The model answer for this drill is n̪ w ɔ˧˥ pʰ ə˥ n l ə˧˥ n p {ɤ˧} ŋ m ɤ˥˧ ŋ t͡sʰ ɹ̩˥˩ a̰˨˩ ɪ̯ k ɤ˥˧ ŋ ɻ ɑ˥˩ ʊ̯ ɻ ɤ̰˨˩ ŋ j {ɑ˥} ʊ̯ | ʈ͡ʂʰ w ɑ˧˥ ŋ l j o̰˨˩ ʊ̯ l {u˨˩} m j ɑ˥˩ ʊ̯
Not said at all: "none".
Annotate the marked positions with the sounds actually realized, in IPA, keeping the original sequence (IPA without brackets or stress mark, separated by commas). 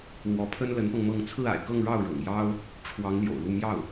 ɤ˧, ɑ˥, u˥˧